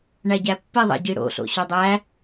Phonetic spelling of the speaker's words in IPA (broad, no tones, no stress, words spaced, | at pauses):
ɳæɟæpːi ðˤæ̰ɟiɽo̰ ɬo̰ɕodˤæ